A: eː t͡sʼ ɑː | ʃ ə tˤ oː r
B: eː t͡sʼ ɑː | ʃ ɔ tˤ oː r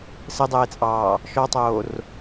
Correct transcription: B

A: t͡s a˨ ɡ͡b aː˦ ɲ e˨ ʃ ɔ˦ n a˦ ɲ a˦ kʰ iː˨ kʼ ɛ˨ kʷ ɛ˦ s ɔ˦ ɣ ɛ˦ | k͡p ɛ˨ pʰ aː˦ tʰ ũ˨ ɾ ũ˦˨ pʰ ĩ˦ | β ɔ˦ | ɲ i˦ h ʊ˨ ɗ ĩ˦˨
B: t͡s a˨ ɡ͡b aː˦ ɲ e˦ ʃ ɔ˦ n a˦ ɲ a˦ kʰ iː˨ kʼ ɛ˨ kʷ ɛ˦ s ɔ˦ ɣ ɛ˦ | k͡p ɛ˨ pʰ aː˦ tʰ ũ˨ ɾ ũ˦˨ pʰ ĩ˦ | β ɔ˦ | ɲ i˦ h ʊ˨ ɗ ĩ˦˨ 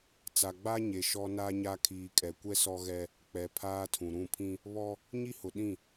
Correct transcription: A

